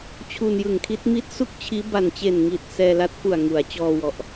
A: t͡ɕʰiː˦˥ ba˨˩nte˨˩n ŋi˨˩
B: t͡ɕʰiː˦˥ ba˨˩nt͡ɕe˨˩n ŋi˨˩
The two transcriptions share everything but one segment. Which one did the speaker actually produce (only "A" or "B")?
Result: B